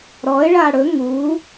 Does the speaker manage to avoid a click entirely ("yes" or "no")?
yes